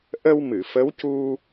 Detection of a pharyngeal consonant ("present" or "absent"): absent